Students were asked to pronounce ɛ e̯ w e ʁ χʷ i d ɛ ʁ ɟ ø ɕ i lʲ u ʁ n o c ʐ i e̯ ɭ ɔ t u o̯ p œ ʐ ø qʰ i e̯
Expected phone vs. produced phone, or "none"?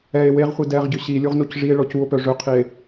t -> c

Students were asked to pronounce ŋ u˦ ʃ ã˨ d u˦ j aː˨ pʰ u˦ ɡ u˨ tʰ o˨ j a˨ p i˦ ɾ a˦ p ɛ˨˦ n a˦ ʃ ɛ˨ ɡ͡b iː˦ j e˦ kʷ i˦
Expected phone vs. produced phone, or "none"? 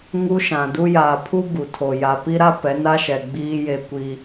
none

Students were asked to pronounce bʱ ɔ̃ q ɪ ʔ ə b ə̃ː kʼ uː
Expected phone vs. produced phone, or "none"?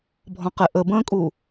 none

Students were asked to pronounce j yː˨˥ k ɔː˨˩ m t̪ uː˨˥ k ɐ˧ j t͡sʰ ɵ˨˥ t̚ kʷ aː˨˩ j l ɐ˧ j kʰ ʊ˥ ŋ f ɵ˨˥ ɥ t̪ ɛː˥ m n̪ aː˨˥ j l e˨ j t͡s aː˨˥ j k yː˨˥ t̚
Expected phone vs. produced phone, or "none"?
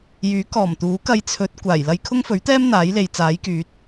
none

